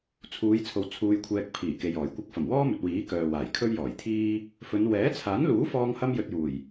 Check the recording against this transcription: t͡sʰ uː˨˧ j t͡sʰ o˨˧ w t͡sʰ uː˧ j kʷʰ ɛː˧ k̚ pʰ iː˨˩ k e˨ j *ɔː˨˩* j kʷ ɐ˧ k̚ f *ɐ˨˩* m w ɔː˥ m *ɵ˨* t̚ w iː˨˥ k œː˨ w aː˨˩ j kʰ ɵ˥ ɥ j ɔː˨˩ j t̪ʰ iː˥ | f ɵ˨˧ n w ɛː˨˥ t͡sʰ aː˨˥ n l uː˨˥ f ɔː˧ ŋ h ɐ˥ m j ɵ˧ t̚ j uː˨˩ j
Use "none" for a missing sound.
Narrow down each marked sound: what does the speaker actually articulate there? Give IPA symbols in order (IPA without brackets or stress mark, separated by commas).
ɔː˨˩, ɐ˨˩, ɵ˨